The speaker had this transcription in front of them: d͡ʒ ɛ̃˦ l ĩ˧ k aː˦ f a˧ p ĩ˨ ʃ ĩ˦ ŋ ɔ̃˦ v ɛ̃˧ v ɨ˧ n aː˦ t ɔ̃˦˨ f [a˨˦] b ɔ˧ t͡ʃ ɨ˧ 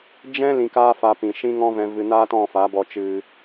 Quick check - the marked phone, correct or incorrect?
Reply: correct